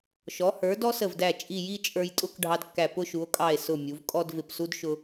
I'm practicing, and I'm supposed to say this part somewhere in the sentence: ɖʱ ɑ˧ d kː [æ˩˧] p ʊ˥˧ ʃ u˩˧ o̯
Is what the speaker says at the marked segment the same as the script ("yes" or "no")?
no